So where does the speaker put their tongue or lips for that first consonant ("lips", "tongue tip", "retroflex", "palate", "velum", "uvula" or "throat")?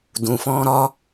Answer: tongue tip